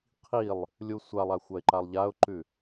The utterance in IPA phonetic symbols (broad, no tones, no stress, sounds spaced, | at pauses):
qʰ i lˠ | lʲ u sʷ a lˠ a xʷ a ɪ̯ ǃ a lˠ ʎ a ʊ̯ ǃ ʉ